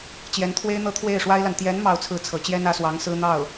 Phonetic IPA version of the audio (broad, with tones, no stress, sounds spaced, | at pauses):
t͡ɕ j ɛ˧˥ n t̪ʰ w e˥ ɪ̯ n̪ ɤ˥ t̪ʰ w e˥˩ ɪ̯ ʂ w a˥ ɪ̯ l a˨ n t̪ j ɛ˧˥ n m ɑ˥˧ ʊ̯ t͡sʰ ɹ̩˥˩ t͡sʰ ɤ˧˥ t͡ɕ j ɛ˥ n ä˧˥ s w ɑ˧˥ ŋ s ɹ̩˥ n̪ ɑ˥˩ ʊ̯